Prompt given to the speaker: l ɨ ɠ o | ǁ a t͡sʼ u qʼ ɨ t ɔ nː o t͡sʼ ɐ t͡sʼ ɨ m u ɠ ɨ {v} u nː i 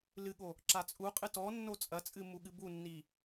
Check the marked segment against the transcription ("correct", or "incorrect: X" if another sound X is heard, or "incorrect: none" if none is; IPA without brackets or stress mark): incorrect: b